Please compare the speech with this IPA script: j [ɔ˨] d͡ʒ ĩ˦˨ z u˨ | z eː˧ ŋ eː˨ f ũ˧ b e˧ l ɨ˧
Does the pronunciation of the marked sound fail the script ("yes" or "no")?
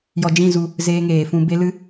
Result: no